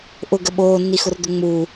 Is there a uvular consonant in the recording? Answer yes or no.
no